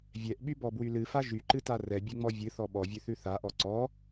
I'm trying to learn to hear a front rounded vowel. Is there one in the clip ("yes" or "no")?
yes